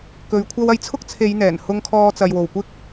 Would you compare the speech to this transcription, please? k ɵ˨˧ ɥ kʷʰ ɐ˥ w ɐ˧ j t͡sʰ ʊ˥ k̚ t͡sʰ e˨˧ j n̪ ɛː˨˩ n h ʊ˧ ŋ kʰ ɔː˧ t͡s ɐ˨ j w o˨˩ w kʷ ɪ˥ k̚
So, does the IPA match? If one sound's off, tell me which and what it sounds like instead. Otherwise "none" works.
none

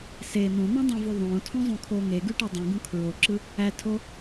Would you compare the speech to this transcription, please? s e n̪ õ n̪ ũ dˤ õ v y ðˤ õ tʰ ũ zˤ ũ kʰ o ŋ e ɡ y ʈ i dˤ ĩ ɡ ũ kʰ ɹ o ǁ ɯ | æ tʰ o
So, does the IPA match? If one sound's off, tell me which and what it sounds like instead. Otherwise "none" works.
none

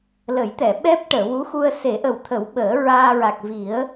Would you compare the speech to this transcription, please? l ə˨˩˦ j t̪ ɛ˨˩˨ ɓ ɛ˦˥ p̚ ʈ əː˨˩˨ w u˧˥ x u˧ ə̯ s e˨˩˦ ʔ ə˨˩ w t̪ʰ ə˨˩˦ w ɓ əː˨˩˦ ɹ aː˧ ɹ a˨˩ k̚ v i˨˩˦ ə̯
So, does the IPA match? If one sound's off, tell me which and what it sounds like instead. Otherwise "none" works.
none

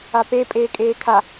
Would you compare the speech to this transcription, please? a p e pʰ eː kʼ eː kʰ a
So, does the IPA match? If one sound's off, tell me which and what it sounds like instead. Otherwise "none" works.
pʰ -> pʼ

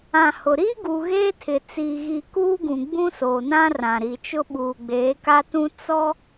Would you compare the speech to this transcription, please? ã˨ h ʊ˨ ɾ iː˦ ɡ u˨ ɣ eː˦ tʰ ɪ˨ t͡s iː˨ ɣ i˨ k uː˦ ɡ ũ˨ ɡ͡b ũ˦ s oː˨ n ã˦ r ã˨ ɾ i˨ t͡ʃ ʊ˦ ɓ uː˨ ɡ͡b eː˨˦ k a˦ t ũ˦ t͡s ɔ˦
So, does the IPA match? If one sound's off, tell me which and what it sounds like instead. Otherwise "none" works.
none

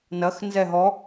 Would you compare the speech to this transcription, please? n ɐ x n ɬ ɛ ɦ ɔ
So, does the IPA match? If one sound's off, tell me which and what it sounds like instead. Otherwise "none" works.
ɬ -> z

